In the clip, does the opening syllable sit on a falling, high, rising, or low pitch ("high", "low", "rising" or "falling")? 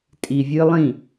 low